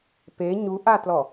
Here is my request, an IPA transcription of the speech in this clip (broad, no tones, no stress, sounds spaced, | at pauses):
p e ɲ u ʔ a t l ɔ